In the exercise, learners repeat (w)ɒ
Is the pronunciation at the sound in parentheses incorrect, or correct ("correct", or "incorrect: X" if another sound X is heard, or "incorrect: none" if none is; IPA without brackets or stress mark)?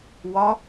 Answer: correct